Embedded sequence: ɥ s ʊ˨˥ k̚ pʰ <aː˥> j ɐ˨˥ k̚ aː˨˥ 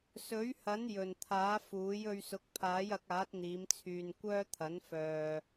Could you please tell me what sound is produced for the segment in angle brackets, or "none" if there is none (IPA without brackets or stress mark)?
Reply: aː˨˥